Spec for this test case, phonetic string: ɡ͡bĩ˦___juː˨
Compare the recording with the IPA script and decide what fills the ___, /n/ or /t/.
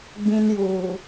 n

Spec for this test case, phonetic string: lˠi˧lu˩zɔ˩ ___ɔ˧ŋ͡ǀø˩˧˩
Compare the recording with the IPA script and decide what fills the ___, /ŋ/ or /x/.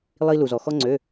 x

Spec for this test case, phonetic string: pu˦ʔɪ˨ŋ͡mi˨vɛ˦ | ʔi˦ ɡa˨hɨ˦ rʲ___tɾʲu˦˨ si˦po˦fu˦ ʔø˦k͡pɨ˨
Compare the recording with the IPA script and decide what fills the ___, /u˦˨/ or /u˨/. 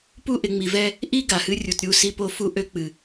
u˨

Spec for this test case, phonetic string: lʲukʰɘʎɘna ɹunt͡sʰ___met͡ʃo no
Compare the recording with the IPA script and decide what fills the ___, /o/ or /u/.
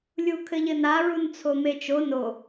o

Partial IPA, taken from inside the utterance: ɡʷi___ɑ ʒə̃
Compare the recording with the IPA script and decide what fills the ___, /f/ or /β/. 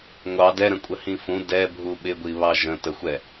β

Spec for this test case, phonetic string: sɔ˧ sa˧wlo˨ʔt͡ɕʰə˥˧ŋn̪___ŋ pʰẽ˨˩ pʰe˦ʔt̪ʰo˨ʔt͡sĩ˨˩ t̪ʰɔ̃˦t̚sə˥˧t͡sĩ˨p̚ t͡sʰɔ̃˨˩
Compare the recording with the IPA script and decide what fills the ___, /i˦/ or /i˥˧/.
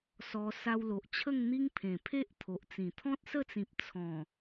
i˦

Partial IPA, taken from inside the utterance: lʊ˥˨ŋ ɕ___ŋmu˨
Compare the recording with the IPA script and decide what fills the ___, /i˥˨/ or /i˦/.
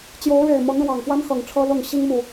i˦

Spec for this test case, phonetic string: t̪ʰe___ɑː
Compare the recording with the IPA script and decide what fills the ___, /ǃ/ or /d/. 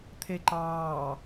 ǃ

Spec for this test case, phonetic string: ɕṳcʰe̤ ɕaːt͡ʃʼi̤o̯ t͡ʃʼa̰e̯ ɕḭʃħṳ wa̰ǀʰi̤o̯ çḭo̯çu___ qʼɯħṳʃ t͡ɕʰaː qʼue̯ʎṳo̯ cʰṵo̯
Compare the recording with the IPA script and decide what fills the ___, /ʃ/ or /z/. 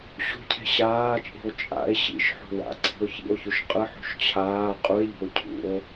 ʃ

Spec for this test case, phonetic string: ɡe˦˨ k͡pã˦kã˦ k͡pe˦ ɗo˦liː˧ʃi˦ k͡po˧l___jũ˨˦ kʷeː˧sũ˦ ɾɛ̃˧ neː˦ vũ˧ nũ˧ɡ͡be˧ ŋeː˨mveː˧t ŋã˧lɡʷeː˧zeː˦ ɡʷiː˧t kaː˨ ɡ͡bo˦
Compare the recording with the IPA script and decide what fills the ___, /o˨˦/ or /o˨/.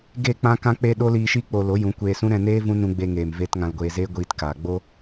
o˨˦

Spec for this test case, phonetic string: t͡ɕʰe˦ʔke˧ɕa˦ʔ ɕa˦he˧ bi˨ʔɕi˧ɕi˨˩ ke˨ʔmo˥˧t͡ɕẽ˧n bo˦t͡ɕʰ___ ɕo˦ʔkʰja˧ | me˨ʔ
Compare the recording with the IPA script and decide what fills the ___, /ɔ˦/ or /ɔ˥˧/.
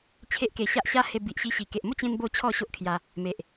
ɔ˥˧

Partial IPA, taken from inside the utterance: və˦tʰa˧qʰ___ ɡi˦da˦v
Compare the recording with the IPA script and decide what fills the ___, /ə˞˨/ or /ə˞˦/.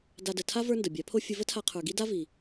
ə˞˨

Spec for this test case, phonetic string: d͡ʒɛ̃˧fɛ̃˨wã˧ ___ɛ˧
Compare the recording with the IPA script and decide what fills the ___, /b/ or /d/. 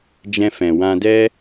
d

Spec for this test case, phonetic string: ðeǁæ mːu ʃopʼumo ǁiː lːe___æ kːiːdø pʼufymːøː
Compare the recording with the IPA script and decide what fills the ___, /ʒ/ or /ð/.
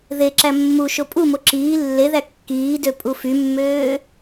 ð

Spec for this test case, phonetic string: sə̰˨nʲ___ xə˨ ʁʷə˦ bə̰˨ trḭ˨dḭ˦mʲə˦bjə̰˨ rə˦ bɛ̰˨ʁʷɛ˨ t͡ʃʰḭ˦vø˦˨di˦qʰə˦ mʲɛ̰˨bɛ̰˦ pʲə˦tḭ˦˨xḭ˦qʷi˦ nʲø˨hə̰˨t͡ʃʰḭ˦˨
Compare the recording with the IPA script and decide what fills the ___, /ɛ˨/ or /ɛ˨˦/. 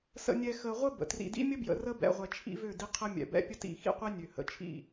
ɛ˨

